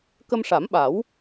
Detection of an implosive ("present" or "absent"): present